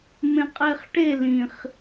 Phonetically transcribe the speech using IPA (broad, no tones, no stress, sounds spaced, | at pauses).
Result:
m ẽ qʼ e χ ʈ e l ĩ χ